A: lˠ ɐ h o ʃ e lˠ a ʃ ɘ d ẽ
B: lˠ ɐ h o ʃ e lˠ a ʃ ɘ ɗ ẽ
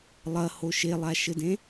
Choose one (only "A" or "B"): A